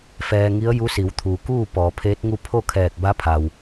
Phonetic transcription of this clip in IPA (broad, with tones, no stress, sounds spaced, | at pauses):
f ɛː˧ ŋ i˧˥ ə̯ j u˧˥ s i˩˧ w t̪ʰ u˩ k uː˥˨ p ɔː˩˧ pʰ eː˧˥ t̚ ŋ u˥˨ pʰ o˥˨ kʰ ɛː˧˩ k̚ b a˧˥ pʰ a˩ w